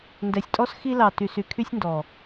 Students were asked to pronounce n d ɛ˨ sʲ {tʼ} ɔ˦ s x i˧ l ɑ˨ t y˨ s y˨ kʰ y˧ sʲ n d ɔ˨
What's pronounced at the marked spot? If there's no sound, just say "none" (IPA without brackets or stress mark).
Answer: tʼ